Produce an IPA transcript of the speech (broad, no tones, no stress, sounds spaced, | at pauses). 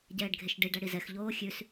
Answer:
ɟ ɛː ɖ ɡʱ e ʃ ɖ i ɖ æ ɽ i z ɛ x ʎ oː xʲ ʉ s